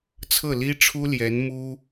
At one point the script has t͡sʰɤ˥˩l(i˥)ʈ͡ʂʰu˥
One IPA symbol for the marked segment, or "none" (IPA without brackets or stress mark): i˥